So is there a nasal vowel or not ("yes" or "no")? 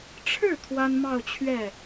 no